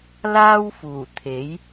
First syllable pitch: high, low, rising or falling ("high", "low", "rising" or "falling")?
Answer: high